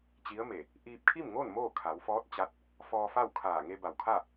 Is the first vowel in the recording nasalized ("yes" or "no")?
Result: no